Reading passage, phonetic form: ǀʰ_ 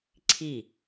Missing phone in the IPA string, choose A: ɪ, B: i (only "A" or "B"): B